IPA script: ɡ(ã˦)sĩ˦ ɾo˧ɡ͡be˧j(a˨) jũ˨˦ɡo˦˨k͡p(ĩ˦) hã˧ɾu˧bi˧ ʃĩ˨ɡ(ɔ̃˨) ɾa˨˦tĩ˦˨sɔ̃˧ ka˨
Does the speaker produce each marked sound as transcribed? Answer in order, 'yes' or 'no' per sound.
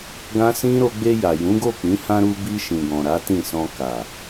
yes, yes, no, yes

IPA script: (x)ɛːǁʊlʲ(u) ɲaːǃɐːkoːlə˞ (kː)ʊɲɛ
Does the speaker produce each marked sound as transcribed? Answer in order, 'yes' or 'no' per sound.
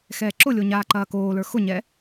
yes, no, no

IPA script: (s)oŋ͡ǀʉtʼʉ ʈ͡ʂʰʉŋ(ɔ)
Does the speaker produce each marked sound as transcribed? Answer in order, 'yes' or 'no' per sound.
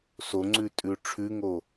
yes, no

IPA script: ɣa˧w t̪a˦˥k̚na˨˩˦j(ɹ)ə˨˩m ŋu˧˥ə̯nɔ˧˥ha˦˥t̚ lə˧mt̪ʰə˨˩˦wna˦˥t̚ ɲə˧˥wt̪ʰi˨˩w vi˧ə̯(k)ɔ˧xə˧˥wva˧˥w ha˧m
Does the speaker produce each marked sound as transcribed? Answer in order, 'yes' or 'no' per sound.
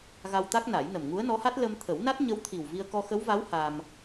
no, yes

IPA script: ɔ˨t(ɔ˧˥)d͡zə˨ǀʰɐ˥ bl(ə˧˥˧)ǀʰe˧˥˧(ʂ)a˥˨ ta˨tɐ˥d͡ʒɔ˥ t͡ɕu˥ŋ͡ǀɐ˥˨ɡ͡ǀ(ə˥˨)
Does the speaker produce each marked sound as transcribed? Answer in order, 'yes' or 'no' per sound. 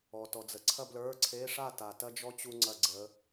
no, no, yes, no

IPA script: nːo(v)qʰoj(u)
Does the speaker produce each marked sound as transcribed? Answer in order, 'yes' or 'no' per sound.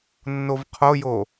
yes, no

